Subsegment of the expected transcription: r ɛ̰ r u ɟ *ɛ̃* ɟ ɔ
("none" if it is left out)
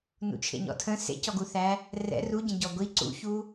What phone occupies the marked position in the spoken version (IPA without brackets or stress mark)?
ə̃